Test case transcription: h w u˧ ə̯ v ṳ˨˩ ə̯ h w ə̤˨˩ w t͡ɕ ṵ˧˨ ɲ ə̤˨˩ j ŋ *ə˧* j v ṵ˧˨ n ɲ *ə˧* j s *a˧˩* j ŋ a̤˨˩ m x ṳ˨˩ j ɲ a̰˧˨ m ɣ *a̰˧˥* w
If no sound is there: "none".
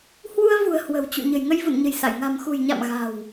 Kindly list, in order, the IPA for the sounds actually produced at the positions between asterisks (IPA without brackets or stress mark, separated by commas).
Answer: ə˧, ə̤˨˩, a˧˩, a̤˨˩